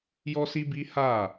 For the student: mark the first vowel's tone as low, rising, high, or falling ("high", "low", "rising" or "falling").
high